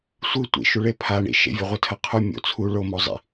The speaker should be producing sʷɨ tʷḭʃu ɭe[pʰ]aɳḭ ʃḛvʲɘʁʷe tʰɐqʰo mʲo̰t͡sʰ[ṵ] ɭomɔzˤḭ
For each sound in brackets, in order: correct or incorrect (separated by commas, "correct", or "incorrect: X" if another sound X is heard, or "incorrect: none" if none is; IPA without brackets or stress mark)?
correct, incorrect: u